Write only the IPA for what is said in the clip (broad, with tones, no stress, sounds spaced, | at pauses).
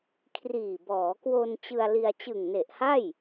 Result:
kʰ r iː˨˩ b ɔː˩˦ k w o˧ n t͡ɕ ɯ˧ a̯ l i˧ a̯ t͡ɕ ɯ˨˩ ŋ n e˨˩ ʔ h a˥˩ j